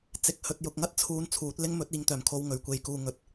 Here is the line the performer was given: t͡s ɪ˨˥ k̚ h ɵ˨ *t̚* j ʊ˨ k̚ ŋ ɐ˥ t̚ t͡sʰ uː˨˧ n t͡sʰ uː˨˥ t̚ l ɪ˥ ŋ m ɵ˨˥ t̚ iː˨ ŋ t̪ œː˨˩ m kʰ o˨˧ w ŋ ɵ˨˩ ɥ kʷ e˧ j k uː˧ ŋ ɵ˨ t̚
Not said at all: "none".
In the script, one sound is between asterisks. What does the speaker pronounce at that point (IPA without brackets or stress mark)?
t̚